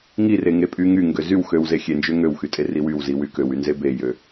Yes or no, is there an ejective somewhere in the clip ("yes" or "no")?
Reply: yes